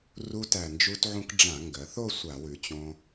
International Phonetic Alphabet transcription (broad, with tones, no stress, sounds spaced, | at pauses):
r u˧ t æ˨˩ n d͡ʒ u˧ t ʕ ũ˧ k ɖ͡ʐ ã˧˩˧ ŋ ɡ ɜ˩˧ θ o˥˧ sʷ a˧˩˧ w ʉ˩˧ t͡ɕ õ˧